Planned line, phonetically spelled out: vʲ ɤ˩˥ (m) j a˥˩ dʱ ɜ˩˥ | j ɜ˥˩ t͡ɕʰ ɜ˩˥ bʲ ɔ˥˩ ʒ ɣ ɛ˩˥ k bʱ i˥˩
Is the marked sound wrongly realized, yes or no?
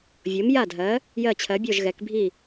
no